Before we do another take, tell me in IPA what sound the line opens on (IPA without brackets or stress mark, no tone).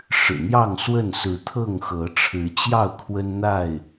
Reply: ʂ